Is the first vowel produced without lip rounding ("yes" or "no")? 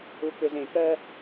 no